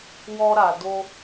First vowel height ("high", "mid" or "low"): mid